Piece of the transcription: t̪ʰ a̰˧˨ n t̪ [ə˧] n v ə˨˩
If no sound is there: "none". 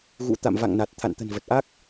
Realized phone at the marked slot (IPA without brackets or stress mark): ə̤˨˩